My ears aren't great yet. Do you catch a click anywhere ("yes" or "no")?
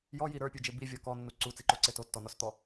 yes